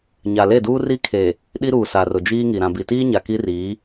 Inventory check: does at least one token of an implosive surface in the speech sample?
yes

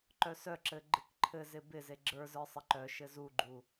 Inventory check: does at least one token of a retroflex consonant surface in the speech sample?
no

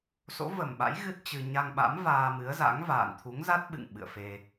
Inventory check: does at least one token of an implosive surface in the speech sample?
yes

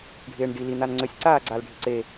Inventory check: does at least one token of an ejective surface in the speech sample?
no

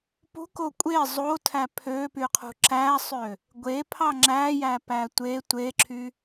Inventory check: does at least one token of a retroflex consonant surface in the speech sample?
no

